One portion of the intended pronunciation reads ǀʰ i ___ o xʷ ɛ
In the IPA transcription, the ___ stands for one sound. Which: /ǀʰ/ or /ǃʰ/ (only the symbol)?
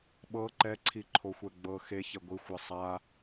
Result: ǃʰ